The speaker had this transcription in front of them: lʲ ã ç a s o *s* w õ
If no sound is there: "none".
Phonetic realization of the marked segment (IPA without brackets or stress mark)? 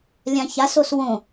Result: s